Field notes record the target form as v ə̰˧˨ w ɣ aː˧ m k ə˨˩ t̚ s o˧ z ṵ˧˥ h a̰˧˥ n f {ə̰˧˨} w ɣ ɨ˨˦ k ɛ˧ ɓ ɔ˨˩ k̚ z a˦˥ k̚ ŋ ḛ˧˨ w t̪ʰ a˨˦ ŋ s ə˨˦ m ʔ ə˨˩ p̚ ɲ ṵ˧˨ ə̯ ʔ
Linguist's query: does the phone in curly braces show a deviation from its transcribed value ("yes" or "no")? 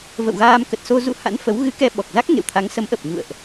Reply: yes